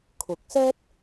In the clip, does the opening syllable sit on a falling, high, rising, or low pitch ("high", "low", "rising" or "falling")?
rising